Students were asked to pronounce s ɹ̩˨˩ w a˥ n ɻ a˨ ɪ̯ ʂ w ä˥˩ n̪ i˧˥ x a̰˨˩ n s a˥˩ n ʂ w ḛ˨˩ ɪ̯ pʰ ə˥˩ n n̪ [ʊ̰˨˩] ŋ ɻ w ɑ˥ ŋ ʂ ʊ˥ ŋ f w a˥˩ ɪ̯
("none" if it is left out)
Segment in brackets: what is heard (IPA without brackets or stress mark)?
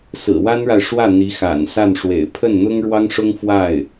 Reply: ʊ˥